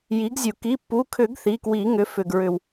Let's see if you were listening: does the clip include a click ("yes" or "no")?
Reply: no